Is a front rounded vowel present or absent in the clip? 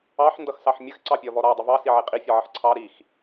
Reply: absent